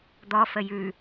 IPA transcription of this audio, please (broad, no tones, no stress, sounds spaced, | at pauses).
d̪ ɔ f ə j ʉ